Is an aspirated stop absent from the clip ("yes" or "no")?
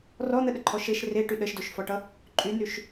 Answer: no